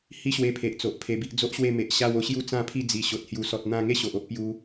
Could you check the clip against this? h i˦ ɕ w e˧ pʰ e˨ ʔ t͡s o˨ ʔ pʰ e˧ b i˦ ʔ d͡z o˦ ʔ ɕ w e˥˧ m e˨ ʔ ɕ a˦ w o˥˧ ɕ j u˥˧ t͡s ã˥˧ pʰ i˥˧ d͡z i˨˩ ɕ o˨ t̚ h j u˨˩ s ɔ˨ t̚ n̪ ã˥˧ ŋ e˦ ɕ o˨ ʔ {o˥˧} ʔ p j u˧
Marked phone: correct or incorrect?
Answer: incorrect